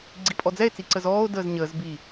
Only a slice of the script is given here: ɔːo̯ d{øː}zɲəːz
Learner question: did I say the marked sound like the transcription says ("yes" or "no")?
no